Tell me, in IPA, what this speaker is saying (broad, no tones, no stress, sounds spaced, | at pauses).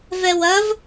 v ɛ w ɐ v